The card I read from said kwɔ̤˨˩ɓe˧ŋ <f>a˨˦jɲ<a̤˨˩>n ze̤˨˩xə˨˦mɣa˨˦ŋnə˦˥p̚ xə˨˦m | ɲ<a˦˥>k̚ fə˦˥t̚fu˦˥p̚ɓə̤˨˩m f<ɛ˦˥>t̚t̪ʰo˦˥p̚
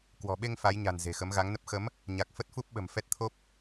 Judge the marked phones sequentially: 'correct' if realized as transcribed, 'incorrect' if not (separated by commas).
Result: correct, correct, incorrect, correct